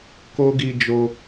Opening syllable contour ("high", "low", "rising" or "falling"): high